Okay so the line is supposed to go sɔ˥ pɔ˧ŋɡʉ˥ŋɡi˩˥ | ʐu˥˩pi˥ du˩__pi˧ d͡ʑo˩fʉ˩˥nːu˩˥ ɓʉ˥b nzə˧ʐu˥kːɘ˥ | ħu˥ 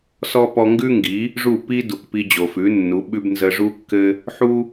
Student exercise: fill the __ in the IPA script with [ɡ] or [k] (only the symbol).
k